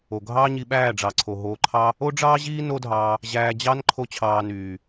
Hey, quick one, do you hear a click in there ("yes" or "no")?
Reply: yes